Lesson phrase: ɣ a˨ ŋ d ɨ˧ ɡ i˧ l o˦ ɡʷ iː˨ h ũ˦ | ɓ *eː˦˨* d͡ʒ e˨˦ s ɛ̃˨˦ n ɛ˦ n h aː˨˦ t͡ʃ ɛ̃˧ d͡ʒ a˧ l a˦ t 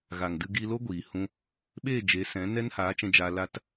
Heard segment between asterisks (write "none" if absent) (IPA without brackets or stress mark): eː˦˨